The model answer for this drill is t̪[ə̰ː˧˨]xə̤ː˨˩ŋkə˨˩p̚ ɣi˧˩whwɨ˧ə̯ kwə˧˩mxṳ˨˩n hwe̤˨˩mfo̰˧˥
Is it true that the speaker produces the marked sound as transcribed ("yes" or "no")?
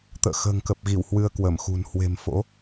yes